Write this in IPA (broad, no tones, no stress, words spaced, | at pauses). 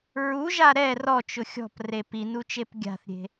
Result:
ɹuʒa ɾɛ rɔt͡ʃʊ xʲɔ̤pre pinut͡ʃep ɡʲa̤θɾʲe̤